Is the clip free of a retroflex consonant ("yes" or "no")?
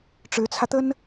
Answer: no